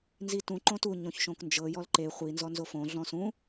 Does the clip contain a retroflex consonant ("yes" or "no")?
no